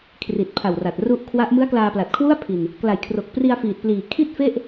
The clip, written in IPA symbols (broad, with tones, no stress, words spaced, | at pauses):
kʰri˨˩t̚pʰa˨˩wra˨˩t̚ ru˦˥ʔkʰwa˦˥ʔ mɯ˦˥a̯klaː˧pla˨˩t̚kʰwu˥˩a̯ pʰi˧n | kla˨˩jkʰro˨˩k̚ pri˧a̯fiː˨˩t̚pliː˨˩ kʰi˥˩t̚fe˥˩ʔ